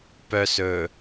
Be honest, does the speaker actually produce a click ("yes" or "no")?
no